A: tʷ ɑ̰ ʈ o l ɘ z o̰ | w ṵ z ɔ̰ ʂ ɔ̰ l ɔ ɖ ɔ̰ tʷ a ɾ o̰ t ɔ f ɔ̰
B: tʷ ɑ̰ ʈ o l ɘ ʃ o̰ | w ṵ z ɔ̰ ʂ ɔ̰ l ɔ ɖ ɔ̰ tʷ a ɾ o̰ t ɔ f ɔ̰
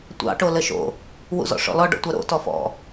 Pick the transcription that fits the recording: B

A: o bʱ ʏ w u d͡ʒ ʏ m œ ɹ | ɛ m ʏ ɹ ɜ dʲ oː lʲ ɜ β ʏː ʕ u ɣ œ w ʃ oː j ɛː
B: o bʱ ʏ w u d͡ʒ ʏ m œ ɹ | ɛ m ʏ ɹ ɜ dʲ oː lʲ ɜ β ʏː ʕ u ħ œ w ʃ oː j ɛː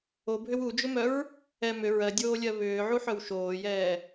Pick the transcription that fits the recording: B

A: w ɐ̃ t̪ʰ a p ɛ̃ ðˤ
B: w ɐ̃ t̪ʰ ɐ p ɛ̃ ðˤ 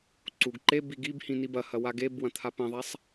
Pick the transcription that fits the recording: A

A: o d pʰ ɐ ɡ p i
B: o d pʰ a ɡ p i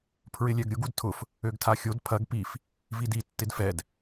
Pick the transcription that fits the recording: A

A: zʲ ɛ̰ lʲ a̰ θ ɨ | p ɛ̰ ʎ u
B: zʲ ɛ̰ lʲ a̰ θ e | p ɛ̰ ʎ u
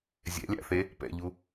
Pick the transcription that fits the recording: B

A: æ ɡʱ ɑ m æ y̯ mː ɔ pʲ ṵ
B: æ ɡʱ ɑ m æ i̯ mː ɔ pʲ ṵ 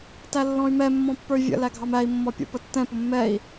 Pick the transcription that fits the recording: B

